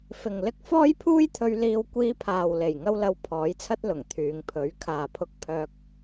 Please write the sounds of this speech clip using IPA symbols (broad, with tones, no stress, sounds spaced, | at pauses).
f ɪ˨ ŋ l ɪ˥ k̚ f ɔː˥ j pʰ uː˥ j t̪ʰ ɵ˧ ɥ l iː˧ w kʷ iː˧ pʰ aː˨ w l e˨˩ j ŋ ɐ˥ w l ɐ˧ w pʰ ɔː˨˥ j t͡sʰ ɐ˥ t̚ l ʊ˨˩ ŋ t̪ʰ yː˨˧ ŋ pʰ ɵ˨˥ ɥ kʰ aː˨ pʰ ʊ˧ k̚ pʰ œː˧ k̚